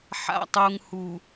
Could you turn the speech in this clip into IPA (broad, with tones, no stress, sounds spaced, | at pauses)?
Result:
ħ a̰˨ tˤ u˨ ŋ h u˨